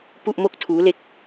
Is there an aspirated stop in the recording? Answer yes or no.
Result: yes